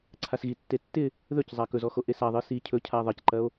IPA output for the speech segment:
ǀʰ a s ɣ i tː e tː ɪ | ð ɵ c zˤ a k ɵ z ɔ x o ʔ e s a ðˤ ɨ s i cʰ ɵ cʰ a ðˤ ɐ c ǃ ɐ o̯

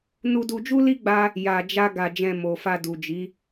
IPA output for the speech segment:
n u˧ d u˧ d͡ʒ u˦ l i˦ ɡ͡b a˦ | j a˧ d͡ʒ a˦ ɡ a˧ d͡ʒ ɛ̃˧ m o˨ f a˧ d u˨ d͡ʒ i˨˦

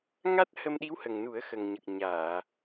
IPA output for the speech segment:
ŋ a˦˥ t̚ h ə˧ m ɗ i˧˥ w h ə˨˩ ŋ n u˨˩˦ ə̯ x ə˨˩ ŋ ɲ ə˨˩ k̚ ɲ aː˨˩˨

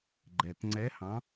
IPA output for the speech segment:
ɡ͡ǃ ɛ˨˩ t ŋ͡ǀ ɛ˧˥ h ɑ̃˧˥

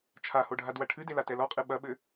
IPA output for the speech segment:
t͡ʃʰ a h o ɖʱ a d w ɐ ʈʰ ɨ d e l a t ɛ l ɔ qʼ ɨ ɓ ɐ ɓ ɘ

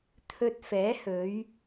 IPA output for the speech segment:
t̪ʰ ɵ˧ t̚ f ɛː˨˥ h ɵ˨˧ ɥ

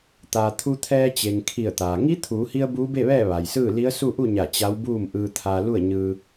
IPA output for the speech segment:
t̪ aː˩ t̪ʰ u˧ t̪ʰ ɛː˧ t͡ɕ e˩ ŋ kʰ i˧˩ ə̯ t̪ aː˩ ŋ i˧˥ t̪ʰ uː˩˧ h i˧ ə̯ b uː˧˥ b e˥˨ ʋ ɛː˥˨ ʋ a˩ j s ɯː˥˨ l i˧˥ ə̯ s u˥˨ ʔ u˥˨ ɲ a˧˩ t͡ɕ a˧˥ w b uː˥˨ m ʔ ɯː˧ t̪ʰ a˧ l u˥˨ ə̯ ɲ ɯː˧

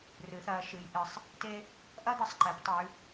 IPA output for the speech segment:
r ɨ˩˧ θ ɐ˩˧ ʃ ɨ˩˧ j ʔ ɨ˩˧ sˤ | t e˥ | ʔ ɐ˥ d̪ ɨ˩˧ sˤ ǃ e˩˧ p tˤ ʉ˩˧

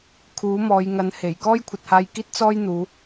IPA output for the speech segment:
kʰ uː˨˥ m ɔː˨˧ j ŋ ɐ˨˥ n h e˨˩ j k ɔː˥ j kʷʰ ɐ˨ t̚ h aː˧ j k iː˥ t̚ t͡s ɔː˥ j n̪ uː˨˧

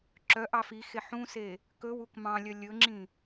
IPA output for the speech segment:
ǁ œ ʔ ɑ f i x e ħ ũ s e | k ɵ w u k m ɑ̃ lʲ œ lʲ ɵ ŋ͡ǁ ĩ

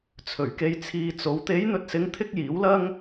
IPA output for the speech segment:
t͡sʰ ɵ˨˩ ɥ k e˧ j t͡sʰ iː˨ t͡s o˨˧ w t̪ e˨˧ j n̪ ɵ˨ t̚ s ɪ˨˧ ŋ t̪ʰ ɪ˧ k̚ j iː˨˥ w l ɐ˥ ŋ

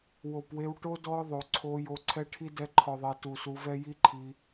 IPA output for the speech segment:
w o˨ p w e˧ w ʈ o˦ d ɔ˦ ðˤ o˨ ǀʰ o˧ j o˧ ǀʰ ɛ˦ ʈʰ i˦ d ɛ˧ ǃʰ ɔ˨ ðˤ e˨ t u˨ s u˧ v ɛ˦ j i˦ ǃʰ i˧

